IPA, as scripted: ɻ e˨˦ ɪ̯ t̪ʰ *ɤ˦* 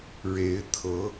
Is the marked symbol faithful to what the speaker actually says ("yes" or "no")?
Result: no